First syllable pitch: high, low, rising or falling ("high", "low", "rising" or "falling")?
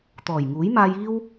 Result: low